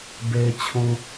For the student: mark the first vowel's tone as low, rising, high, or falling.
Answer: low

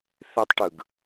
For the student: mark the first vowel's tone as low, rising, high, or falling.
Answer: high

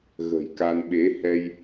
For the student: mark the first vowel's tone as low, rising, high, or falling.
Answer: low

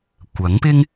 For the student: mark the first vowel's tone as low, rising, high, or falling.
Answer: rising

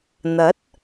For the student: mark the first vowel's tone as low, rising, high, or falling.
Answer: rising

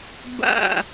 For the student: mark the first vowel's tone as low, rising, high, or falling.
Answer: falling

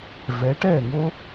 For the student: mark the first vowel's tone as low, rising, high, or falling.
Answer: rising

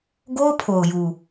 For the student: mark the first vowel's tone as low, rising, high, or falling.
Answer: high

